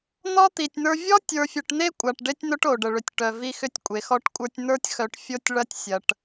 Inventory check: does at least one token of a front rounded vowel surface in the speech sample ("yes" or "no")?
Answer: yes